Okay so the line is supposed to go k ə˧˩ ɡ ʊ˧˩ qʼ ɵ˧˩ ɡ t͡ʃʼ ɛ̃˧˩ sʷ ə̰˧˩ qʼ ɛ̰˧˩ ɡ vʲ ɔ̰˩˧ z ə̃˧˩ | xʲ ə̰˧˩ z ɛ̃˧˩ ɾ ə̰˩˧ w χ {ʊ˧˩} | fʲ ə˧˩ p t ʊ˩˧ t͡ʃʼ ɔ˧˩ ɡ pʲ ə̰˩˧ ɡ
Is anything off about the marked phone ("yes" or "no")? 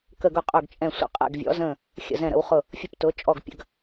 no